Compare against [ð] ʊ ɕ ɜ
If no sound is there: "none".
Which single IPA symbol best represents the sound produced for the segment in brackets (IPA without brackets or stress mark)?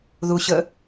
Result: ð